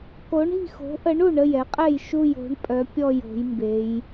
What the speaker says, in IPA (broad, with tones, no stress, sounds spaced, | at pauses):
k o˨˦ ɳ i̤˦˨ x o̤˨˦ ʔ ə˨˦ ɳ u˦˨ ɳ ə˦˨ j ɛ˨˦ qʼ ɛ˦˨ j ʃ u˦˨ j o̤˨˦ ɳ pʼ œ˨˦ pʲ ɔ˦˨ j o̤˨˦ j m b e˨˦ j